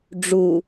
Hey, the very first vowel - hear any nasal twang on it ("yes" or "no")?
no